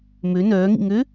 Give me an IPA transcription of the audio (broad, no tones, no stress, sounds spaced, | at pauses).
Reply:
m ø n œː ŋ ḭ ŋ ø